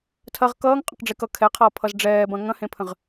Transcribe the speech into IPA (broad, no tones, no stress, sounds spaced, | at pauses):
tʰ ɐ ʁ k ʌː ŋ qʼ ə̃ q ɖ͡ʐ e k ʌ kʰ ɛ qʰ ʌː pʰ ʌ z ɖ͡ʐ ɛː b ɐ̃ ŋ ɐ̃ h ẽ pʰ ə̃ ʁ